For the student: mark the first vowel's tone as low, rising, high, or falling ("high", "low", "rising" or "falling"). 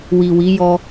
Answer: low